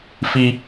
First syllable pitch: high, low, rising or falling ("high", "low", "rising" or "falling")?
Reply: high